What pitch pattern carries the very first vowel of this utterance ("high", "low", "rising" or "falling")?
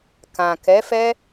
low